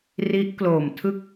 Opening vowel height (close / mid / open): close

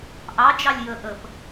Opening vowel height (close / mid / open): open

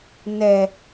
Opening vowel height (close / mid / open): mid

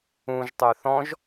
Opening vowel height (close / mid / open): close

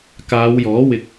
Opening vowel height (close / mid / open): open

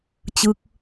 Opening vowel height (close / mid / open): close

